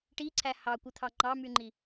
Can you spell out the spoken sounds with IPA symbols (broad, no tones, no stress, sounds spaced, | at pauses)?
ʈ i ǀʰ æ h ɑ kʷ ɯ t̪ʰ ɑ ŋ͡ǃ ɑ m y ŋ͡ǃ i